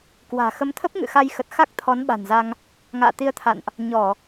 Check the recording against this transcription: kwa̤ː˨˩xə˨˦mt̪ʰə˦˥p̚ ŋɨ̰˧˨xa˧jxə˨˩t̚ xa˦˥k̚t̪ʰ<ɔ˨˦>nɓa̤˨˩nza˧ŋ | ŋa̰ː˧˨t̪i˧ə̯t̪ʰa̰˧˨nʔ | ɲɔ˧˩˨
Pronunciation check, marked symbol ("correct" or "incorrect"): correct